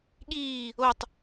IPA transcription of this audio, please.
ɠ iː | o tˤ

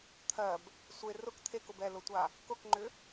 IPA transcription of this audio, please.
t̪ʰ ɜ b | sʷ e r ʊ k t̪ʰ e k ʊ b ɛ l ʊ tʷ a | k ʊ k ŋ͡ǃ ʏ

